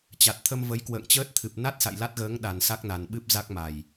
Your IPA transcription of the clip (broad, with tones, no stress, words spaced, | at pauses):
t͡ɕa˨˩t̚t̪ʰə˧mvə˨˦j kwə̰ː˧˨ŋt͡ɕəː˦˥t̚t̪ʰɨ˨˩p̚ na˦˥t̚sa̰˧˨j la˦˥t̚ɣəː˨˦ŋ ɗa˨˩nsa˦˥k̚na˨˩nɓɨ˦˥p̚ za˦˥k̚ma˨˩j